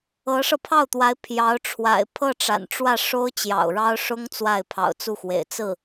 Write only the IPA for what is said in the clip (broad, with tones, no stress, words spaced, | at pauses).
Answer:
ɤ˧˥ʂɤ˧pʰɑ˥˩ʊ̯t̪wa˧˥ɪ̯ pʰjɑ˧˥ʊ̯ʈ͡ʂʰwa̰˨˩ɪ̯ pʰɤ˥˩ʈ͡ʂa̰˨˩nʈ͡ʂwä˥˩ʂo˥ʊ̯ t͡ɕjɑ̰˨˩ʊ̯ɻɑ˥ʊ̯ʂʊ˥ŋ t͡swa˥˩ɪ̯pʰɑ̰˨˩ʊ̯t͡su˥˩xwḛ˨˩ɪ̯ t͡sɹ̩˥˩